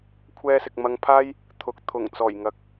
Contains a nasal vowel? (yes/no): no